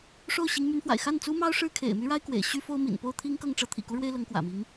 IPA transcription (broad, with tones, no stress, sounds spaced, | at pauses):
ʂ o˥˩ ʊ̯ ɕ i˧˥ ŋ m y˧˥ n f w a̰˨˩ ɪ̯ x a˥˩ n t͡s u˥ m ɑ˥ ʊ̯ ʂ ɻ̩˥ kʰ ḛ˨˩ ɪ̯ m y˥ ɻ a˥ ɪ̯ k w ḛ˨˩ ɪ̯ ɕ y˥ f o˥ ʊ̯ m ḭ˨˩ n p o˥˩ ʊ̯ t̪ʰ i˥ ŋ k ɤ˥˩ ŋ ʈ͡ʂ ɤ˥ t̪ʰ ḭ˨˩ k u˥ ɻ w e˥ ɪ̯ l ɤ˧˥ ŋ k w ä̰˨˩ m i˧˥ ŋ